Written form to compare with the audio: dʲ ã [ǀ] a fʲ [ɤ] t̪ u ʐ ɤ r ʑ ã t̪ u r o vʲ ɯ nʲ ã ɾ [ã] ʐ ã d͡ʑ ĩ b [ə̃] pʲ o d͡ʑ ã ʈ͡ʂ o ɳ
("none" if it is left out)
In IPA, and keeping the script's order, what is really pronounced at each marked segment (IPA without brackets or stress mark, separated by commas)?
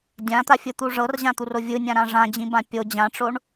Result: t̪, ɯ, ã, ã